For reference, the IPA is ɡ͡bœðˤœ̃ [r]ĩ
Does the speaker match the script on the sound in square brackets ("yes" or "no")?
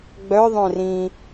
yes